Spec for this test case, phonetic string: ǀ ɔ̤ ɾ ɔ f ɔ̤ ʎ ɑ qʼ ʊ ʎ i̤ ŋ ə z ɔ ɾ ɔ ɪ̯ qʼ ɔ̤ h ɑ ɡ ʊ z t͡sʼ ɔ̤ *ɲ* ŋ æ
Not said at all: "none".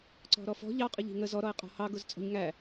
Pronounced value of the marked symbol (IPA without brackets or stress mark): ɲ